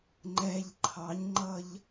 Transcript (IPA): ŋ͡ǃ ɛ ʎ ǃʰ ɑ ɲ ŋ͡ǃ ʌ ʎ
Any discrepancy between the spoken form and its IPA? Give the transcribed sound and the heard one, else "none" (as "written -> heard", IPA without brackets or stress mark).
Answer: none